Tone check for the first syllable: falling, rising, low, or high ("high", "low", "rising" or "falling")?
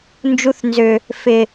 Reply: low